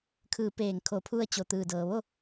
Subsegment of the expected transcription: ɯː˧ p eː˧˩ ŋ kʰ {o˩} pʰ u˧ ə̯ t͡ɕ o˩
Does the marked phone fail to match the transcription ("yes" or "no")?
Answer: yes